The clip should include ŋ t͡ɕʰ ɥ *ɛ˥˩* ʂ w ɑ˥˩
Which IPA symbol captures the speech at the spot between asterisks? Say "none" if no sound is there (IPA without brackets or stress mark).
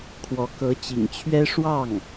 ɛ˥